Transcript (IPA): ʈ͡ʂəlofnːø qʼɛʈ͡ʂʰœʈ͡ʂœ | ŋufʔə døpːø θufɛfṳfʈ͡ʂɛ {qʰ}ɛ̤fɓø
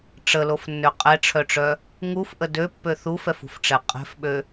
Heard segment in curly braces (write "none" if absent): qʼ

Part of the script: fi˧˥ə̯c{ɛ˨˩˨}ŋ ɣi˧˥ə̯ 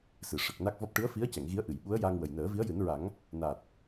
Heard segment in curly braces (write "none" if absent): ɛ˨˩˨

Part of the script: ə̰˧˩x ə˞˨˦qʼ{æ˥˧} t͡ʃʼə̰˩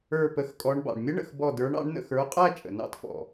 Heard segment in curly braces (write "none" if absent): æ˥˧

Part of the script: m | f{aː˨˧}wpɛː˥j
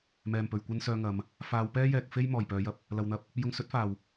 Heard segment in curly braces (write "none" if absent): aː˨˧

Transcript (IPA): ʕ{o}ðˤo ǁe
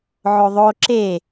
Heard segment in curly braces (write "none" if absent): o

